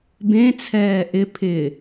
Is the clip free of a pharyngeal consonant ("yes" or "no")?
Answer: yes